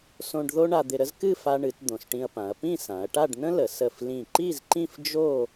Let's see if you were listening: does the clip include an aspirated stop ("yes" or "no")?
no